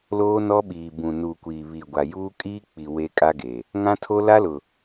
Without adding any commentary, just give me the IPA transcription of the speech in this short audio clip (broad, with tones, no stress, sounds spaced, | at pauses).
l oː˦ n ɔ˦ ɓ iː˨ b ũ˨ n uː˨ kʷ iː˨ β i˨ ɡʷ a˨ j uː˦ kʼ iː˦ k͡p i˨ w e˦ kʼ a˦ ɡ e˨ | ŋ ã˦ tʰ o˦ l a˦ l ʊ˨